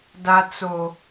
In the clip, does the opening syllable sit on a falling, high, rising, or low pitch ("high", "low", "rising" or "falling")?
low